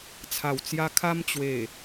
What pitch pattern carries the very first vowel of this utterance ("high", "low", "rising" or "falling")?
low